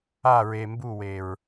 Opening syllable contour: falling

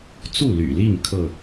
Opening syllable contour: falling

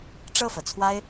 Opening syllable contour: falling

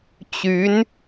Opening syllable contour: rising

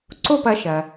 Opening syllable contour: falling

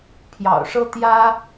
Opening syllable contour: low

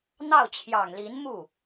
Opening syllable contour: falling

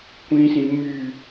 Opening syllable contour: high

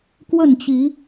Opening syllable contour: falling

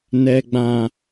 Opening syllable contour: low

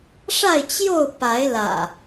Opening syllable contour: falling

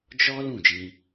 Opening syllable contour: high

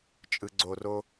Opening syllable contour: low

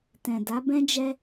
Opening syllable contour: low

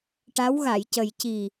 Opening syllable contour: rising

